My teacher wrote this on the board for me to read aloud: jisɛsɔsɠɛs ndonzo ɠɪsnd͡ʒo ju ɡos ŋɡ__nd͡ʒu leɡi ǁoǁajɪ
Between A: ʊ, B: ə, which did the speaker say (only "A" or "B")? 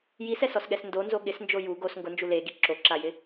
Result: A